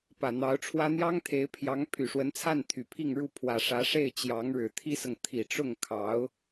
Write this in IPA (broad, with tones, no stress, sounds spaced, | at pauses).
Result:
p ä˨˩ n̪ ɑ˧˥ ʊ̯ ʈ͡ʂʰ w ä˥ n̪ j ɑ˥ ŋ t̪ʰ e˧˥ ɪ̯ pʰ j ɑ˧˥ ŋ pʰ y˨˩ ʂ w ə˧˥ n t͡sʰ a˥˩ n t̪ʰ y˨˩ pʰ i˥˧ ŋ ɻ u˥˩ pʰ w ä˨˩ ʂ ä˧˥ ʂ e˥˩ ɪ̯ t͡ɕ j ɑ˧˥ ŋ ɻ ɻ̩˨˩ t̪ʰ i˥ s ɤ˨ ŋ t̪ʰ i˨˩ ʈ͡ʂ ʊ˥˩ ŋ kʰ ɑ˧˥ ʊ̯